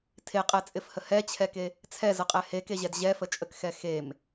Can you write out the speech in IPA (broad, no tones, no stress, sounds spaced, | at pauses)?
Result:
tʰ e qʼ ɛ t͡sʼ ɪ f h ə h ɛ t͡ɕʰ ɛ k e | t͡sʰ ɛ z ə qʼ ɛ h e k e ʑ ɛ d ʑ ɛ f ə t͡ʃʼ ə k x ɛ x e m